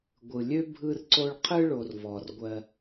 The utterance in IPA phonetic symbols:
ɡʷɯ˩lʲø˦ bʱɯ˦r ǀo˦ɭqʰɯ˥ɭo˨r vɔ˩rɡʷɜ˨

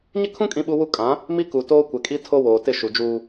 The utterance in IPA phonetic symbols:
ɲɪ˦kʰũ˦ kʼĩ˦ɓu˦wu˦ kʼã˨˦ | mi˦ku˨ toː˦kʷɛ˨kʼi˦ tʰo˦woː˨tɪ˦˨ ʃu˨d͡ʒuː˦

